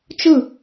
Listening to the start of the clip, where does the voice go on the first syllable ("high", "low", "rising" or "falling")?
falling